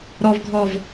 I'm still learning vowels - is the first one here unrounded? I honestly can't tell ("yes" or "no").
no